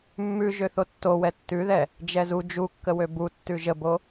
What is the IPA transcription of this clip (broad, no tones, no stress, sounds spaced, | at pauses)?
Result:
mː ʉ ʒ ø θ o tː o w ɛ tː ʉ ð ɛ | d͡ʒ ɛ z u d͡ʒ u kː ə w ø b u tː ʉ ʒ ə b o